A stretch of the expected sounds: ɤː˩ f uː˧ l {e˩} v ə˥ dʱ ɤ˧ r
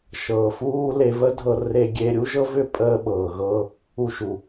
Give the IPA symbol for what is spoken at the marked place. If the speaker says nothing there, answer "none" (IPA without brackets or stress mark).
e˧